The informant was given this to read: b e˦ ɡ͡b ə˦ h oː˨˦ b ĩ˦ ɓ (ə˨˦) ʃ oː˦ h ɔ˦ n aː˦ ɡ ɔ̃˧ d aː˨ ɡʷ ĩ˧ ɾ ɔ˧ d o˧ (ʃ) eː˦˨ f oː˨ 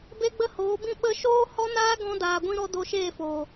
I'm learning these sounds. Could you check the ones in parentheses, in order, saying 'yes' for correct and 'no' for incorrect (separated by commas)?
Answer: no, yes